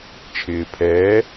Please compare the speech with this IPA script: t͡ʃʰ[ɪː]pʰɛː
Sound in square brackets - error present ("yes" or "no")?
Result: no